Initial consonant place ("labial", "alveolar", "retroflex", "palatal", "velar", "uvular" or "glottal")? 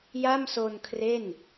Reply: palatal